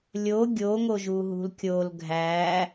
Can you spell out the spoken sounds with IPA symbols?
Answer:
lʲ o ɡʲ o ŋ o ʒ u ɦ ṳ l kʲ o l ɡʱ æ

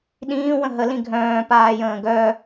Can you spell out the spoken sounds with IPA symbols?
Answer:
ɗ ĩː w ə̃ ɦ ə l ĩ ɡʱ œ̃ː p aː j ə̃ː ɡ œ

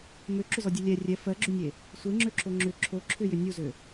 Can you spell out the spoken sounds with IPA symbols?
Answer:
m ø ǁ ʏ z ɔ dʲ u lʲ ɛ rʲ ɛ f ɜ ɡ͡ǁ ʏ nʲ e | sʷ e ŋ͡ǁ ø ǁ o ŋ͡ǁ ʏ ǁʰ o ǁʰ ʏ j ʏ nʲ u z ø

